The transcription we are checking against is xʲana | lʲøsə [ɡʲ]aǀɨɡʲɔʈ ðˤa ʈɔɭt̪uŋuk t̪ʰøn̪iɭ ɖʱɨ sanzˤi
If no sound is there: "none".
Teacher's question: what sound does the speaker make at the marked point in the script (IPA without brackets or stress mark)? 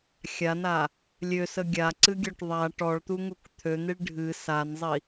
ɡʲ